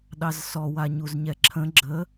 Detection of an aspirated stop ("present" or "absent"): present